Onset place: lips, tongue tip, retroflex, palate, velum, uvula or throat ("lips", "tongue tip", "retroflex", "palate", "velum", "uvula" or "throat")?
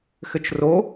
velum